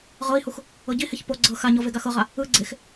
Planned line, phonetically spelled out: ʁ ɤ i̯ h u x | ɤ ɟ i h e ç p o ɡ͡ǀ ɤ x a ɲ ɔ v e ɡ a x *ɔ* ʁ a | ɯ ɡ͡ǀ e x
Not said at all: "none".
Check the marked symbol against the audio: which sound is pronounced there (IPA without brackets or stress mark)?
ɤ